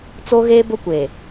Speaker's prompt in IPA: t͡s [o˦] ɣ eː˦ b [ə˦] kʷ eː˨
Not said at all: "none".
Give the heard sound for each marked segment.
o˦, ʊ˦

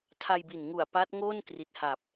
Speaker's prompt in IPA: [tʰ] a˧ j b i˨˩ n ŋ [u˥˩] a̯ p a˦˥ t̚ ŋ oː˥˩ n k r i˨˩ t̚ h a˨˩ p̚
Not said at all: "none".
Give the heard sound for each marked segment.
tʰ, u˨˩

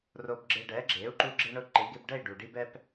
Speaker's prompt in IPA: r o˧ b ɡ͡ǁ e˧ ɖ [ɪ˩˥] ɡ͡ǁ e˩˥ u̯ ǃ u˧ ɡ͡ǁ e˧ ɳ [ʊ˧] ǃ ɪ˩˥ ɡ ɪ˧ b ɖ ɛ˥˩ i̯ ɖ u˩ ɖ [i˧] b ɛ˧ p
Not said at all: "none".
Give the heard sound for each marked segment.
ɛ˩˥, ʊ˧, i˧

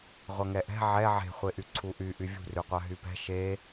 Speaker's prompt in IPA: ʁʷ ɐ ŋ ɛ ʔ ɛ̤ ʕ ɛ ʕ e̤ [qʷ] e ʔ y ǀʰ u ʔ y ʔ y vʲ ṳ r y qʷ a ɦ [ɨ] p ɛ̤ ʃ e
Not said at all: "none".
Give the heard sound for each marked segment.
χʷ, y

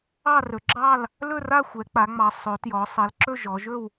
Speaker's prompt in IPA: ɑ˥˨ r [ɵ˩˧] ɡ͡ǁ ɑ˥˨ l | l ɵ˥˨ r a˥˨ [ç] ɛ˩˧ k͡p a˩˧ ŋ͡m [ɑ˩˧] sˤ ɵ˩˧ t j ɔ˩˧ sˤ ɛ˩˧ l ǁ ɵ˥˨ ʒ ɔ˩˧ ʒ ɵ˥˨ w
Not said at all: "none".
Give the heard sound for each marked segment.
ɵ˩˧, xʷ, ɑ˩˧

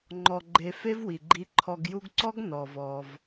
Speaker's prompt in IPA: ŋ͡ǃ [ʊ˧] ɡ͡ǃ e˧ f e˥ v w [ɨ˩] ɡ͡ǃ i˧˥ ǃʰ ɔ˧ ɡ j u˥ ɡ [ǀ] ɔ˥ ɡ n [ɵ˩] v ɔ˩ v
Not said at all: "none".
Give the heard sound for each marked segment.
ɔ˧, i˩, ǀ, ɔ˩

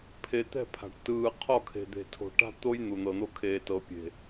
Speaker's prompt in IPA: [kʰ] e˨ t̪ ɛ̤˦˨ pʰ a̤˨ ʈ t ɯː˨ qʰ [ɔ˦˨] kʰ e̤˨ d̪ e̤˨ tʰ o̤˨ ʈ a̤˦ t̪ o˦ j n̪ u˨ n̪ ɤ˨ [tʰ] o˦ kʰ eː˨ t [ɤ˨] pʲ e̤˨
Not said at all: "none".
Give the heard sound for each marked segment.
pʰ, ɔ˦˨, n̪, ɤ˨

